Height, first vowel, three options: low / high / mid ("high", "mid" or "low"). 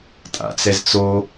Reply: low